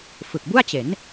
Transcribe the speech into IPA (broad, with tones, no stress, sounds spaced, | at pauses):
f ɯ˨˩ k̚ b u˥˩ a̯ t͡ɕ e˩˦ n